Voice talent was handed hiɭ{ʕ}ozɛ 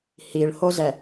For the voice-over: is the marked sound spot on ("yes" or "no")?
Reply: no